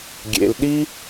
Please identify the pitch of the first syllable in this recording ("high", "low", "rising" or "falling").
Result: low